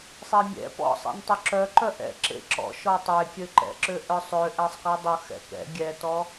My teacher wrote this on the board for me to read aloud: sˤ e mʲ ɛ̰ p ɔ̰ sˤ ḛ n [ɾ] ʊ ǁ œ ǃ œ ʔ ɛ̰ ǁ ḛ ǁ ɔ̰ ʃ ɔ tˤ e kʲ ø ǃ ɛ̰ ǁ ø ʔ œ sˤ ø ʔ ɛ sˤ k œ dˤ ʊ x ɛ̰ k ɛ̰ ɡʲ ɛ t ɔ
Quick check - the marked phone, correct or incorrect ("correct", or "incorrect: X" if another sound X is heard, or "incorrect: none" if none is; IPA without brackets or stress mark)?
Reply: incorrect: tˤ